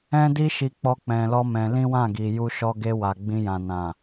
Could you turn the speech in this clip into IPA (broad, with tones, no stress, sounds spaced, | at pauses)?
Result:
ɛ̃˦ d i˦ ʃ i˧ k͡p ɔ˦ k͡p ɛ̃˧ l ɔ˦ m ɛ̃˧ l ĩ˦ w ã˦˨ ɡ i˨ j u˧ ʃ ɔ˧ ɡ e˧ w a˨ ɡ͡b ĩ˧ j ã˨ n ã˨